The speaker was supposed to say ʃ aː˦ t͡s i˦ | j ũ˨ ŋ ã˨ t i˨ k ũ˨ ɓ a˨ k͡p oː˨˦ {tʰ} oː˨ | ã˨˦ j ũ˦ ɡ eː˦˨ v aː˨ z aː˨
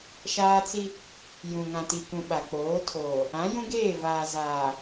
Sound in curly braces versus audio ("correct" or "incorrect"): correct